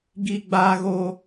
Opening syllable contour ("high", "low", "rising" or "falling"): low